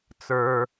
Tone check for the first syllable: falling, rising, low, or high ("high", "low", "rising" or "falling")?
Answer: low